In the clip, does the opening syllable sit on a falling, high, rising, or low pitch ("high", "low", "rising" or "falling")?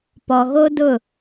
low